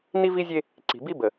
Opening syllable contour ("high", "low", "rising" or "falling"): high